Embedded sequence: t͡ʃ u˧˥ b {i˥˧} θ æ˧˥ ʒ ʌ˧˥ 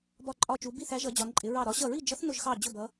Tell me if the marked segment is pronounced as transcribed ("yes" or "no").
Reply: yes